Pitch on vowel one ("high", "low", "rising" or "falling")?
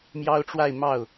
high